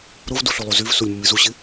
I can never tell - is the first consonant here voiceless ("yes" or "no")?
no